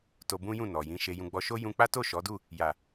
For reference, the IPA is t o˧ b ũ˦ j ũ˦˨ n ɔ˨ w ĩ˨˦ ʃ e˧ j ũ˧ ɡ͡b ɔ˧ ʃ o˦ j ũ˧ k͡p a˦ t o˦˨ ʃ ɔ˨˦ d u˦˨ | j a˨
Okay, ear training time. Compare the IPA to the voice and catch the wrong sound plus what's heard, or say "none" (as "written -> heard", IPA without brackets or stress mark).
w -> j